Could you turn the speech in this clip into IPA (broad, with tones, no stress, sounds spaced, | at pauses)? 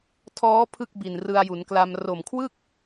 tʰ ɔː˦˥ pʰ ɯ˥˩ k̚ b i˨˩ n r ɯ˧ a̯ j u˩˦ n k l a˧ m r o˨˩ m kʰ w ɯ˥˩ k̚